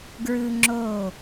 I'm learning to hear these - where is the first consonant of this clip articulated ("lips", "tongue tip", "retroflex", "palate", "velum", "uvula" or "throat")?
velum